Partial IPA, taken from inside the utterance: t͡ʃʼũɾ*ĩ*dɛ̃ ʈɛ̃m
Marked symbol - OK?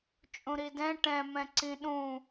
no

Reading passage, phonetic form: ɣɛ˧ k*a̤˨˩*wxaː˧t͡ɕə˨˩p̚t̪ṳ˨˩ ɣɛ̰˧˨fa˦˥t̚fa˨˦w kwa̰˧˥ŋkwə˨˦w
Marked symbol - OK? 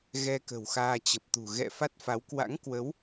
no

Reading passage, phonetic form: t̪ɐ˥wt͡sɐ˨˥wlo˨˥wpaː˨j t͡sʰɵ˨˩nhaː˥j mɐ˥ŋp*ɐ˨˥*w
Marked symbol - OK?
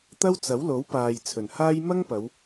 no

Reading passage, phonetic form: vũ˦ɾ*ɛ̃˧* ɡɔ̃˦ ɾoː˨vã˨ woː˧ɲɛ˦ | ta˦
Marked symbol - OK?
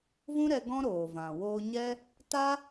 no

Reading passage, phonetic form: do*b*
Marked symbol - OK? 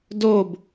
yes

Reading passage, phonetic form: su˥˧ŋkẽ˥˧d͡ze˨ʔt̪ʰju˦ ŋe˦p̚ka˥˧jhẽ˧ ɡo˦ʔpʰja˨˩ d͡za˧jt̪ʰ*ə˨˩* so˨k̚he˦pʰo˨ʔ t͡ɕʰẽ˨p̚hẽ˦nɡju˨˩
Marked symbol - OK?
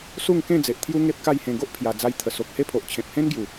yes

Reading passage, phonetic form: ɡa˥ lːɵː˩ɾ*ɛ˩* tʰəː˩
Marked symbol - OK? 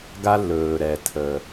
yes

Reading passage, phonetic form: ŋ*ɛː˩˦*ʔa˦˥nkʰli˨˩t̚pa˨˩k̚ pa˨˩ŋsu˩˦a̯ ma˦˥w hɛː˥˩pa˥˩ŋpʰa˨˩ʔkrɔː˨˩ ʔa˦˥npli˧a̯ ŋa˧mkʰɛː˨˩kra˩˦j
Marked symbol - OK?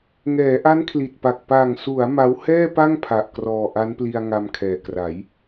yes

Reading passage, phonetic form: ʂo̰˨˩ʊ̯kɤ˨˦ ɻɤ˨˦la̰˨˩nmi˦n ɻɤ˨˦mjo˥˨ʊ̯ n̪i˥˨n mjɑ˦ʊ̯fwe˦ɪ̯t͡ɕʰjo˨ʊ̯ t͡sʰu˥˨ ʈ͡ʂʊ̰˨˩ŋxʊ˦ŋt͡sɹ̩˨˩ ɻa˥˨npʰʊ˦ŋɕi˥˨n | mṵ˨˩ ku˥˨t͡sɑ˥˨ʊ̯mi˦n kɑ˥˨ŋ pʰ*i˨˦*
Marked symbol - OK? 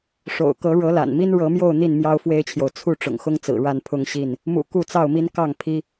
no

